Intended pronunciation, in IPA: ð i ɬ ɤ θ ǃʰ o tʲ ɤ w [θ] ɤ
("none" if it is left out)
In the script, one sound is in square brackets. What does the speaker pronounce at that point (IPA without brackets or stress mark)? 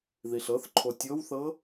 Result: θ